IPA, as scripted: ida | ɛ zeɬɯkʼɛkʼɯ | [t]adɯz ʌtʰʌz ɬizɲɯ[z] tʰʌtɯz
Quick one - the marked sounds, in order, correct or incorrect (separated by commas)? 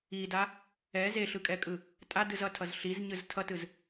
incorrect, correct